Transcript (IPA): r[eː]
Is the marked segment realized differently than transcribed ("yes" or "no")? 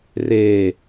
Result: no